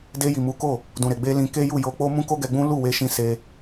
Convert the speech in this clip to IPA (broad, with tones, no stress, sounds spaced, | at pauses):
d e˧ j i˨ m u˨˦ k o˦˨ | d ũ˨ ɾ e˨ ɡ͡b e˧ l ĩ˧ k e˦ j u˦˨ j o˧ k͡p o˦ m ũ˦ k o˦ ɡ ɛ˧ ɡ͡b ũ˦ l u˦˨ w e˧ ʃ ĩ˧ s e˧